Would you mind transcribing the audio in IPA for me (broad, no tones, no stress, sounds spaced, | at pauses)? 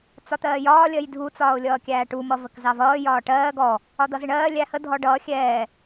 t͡s ɒ t̪ ɜː j ɒː lʲ ɜ j dʱ u t͡s ɒː ʊ̯ lʲ ʌː kʲ æː ʈ u m ʌ v ə k z ɑ v ʌː j ɒː ʈ ɜː ɡ ɔ | ɒ d̪ ʌ z ɪ ɳ ɜː lʲ æ h ə dʱ ɔ ɖ ʌː xʲ ɛː